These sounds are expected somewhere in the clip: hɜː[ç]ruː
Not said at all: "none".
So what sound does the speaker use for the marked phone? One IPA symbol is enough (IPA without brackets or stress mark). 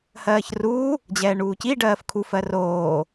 ç